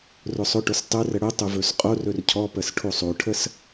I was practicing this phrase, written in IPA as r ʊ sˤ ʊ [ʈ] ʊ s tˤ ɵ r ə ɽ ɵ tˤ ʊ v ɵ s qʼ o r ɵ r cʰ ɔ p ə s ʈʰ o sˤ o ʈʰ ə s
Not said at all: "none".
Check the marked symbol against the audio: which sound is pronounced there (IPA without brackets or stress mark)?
ʈ